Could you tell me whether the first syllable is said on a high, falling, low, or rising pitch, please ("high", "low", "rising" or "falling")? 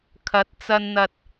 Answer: rising